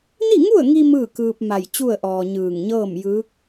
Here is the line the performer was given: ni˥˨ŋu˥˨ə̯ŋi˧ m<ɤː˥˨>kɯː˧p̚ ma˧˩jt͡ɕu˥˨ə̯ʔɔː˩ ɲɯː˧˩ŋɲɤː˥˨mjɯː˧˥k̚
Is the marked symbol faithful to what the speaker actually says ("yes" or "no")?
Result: no